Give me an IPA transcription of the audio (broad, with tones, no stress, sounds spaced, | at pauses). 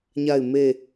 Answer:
ɲ a˦˨ ɪ̯ m e˦˨